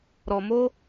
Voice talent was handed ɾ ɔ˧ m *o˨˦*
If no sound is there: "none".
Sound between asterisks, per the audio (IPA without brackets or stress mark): o˦